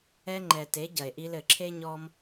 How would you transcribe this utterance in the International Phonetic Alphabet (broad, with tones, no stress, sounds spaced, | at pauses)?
ɛ˧ ŋ͡ǃ ɛ˨ t e˨˦ ɟ ɐ˨ e̯ ʔ i˧ l ɘ˨ ǁʰ e˦ ɲ ɔ˦ m